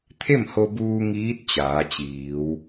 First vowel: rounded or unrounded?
unrounded